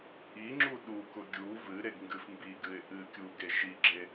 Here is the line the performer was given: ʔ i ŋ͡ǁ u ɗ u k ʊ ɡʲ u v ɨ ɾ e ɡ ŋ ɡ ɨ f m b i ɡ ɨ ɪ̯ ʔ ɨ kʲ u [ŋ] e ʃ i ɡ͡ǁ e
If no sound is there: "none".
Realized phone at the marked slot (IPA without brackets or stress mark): ɡ